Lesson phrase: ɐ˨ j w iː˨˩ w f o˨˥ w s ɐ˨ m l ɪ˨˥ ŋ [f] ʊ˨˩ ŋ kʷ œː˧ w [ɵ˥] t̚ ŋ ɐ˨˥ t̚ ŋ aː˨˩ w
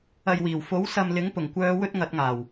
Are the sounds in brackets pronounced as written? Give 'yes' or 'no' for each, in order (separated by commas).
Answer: no, yes